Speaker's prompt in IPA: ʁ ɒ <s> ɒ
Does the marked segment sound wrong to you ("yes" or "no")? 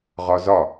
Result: yes